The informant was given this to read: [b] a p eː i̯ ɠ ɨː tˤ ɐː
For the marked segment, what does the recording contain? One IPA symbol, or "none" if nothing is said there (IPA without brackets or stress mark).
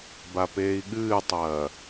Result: b